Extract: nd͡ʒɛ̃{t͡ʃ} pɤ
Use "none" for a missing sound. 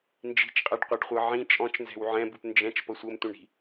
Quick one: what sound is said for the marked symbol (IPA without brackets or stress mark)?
t͡ʃ